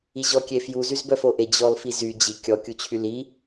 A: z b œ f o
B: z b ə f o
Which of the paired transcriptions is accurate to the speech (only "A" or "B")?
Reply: A